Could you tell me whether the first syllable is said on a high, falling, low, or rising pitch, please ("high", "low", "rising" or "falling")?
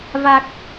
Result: low